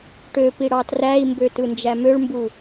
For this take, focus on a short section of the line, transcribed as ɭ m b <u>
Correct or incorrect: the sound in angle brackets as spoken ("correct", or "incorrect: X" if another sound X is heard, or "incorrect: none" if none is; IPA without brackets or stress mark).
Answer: correct